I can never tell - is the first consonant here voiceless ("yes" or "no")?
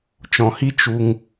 yes